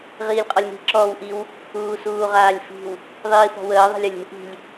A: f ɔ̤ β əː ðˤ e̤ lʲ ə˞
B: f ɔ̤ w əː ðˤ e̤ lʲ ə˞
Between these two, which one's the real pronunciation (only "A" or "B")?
B